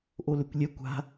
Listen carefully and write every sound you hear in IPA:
ʔ o l ø kʷ lʲ ɛ kʷ a̤

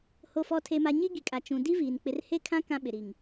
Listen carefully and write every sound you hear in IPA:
h o˨ f ɔ˨ tʰ e˨ m a˨ ɲ i˦ ɡ i˨ kʼ a˨ t͡ʃ ũ˨ d i˦ v iː˨ n k͡p ɪ˨ r h e˦ kʰ ã˦ k ã˦ ɓ ɪ˨ ɾ i˨ ŋ

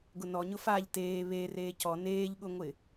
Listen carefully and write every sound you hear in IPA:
ɡ ʊ n ɔ ɲ ʊ f a ʎ t eː β e r eː c ɔ n eː ʎ ɠ ʊ ŋʷ ɪ

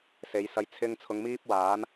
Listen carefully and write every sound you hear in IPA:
s e˨˧ j s ɐ˧ j t͡sʰ ɪ˧ ŋ t͡sʰ ʊ˨˧ ŋ m iː˥ p̚ w aː˨˥ n

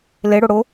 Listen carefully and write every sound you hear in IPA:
l ɪ ɽ ʊ ɽ ʊ

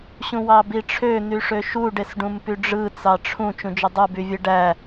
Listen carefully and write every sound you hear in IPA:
ɕ ũ w ɑ b i ʈ͡ʂʰ ø n̪ y ʂ ø ʃ u ɖ e s ɖ ũ m p y ɖ͡ʐ ɯ t͡s ɑ ʈ͡ʂʰ ũ t͡ʃ ũ d͡ʒ e dˤ u b y vʲ ɯ ɖ æ

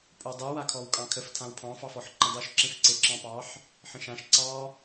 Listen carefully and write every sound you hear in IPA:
pʼ o dˤ u w a kʰ ɔ w kʼ ɑ̃ kʰ ə f tʰ ã w pʰ ɑ̃ f ɑ f ɔ ħ ǃ ə̃ dˤ u ʃ ǁ ẽ f ǀ e ǁ ɑ̃ p ɑ ħ | ħ ə̃ ʃ ã ʃ ǀ ɑ

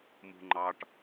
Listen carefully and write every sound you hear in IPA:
m ṳ ŋ͡ǃ ɑ ʈ

